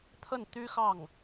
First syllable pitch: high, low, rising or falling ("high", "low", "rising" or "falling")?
falling